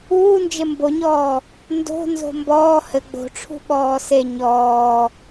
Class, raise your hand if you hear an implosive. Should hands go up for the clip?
yes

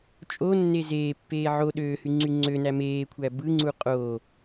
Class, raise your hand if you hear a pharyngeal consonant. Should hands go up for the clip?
yes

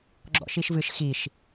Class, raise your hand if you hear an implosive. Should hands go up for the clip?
no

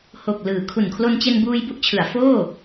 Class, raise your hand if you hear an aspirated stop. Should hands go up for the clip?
yes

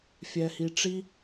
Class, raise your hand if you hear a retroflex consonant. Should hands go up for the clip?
yes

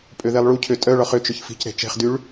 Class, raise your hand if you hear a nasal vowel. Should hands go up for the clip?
no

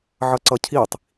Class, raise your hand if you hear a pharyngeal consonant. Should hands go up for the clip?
yes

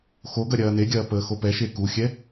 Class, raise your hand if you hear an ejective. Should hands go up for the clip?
no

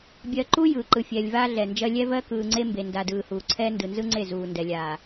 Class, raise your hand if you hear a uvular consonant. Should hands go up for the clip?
no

